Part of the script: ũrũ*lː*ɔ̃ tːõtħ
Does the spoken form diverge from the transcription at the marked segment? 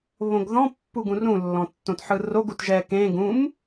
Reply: no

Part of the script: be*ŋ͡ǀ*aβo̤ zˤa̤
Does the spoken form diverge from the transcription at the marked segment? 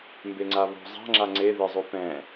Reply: no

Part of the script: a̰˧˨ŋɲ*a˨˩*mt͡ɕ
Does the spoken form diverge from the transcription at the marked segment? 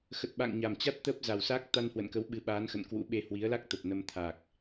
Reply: no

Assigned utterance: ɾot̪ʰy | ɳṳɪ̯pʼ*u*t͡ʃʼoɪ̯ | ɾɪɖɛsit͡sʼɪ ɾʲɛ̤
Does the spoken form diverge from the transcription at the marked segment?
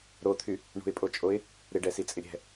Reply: yes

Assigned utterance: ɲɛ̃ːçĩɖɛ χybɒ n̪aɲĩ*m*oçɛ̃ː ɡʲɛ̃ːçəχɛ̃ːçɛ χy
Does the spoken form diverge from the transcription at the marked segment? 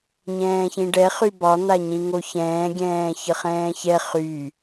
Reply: yes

